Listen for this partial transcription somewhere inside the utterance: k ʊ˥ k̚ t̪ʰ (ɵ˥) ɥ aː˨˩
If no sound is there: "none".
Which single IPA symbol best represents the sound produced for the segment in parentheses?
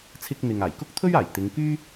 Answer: ɵ˥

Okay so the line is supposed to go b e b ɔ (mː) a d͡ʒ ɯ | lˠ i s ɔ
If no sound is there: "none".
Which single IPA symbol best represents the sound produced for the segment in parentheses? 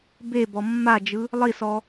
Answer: mː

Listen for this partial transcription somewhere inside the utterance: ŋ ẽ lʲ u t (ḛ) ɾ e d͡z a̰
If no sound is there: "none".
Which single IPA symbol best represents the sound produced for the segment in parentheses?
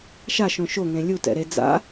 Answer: ɛ̰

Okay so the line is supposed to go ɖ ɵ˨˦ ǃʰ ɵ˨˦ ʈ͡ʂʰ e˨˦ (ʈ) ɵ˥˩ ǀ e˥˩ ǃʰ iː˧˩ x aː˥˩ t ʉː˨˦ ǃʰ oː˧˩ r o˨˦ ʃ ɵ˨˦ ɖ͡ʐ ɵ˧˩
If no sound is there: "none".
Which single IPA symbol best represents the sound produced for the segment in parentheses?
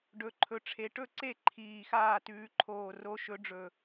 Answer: ʈ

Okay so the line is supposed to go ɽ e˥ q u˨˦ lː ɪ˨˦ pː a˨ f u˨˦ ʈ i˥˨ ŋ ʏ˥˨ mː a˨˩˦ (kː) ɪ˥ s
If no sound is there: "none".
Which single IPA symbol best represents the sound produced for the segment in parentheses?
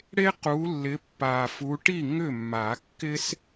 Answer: kː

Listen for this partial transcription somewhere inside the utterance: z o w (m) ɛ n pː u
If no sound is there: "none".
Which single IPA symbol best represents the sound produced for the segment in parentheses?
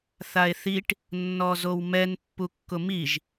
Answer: m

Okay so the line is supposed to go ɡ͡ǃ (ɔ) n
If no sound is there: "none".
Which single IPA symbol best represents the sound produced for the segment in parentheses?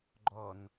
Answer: ɔ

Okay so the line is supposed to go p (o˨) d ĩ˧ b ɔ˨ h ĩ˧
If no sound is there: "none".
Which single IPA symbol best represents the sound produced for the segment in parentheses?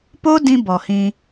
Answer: o˦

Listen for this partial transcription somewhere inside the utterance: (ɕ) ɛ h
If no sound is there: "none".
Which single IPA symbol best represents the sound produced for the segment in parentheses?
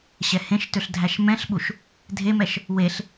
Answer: ɕ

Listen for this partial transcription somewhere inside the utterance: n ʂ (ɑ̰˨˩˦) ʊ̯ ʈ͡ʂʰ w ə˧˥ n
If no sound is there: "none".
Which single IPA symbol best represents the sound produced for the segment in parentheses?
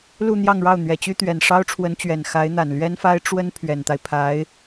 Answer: ɑ˥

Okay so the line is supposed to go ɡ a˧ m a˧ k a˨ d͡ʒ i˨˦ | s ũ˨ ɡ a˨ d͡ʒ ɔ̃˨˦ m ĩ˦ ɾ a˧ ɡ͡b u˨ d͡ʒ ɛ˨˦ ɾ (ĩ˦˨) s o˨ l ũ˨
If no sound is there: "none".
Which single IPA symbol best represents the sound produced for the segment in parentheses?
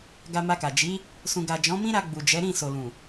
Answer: ĩ˦˨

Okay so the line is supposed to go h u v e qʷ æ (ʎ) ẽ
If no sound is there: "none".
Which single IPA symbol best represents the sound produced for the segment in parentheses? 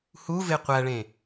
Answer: ɭ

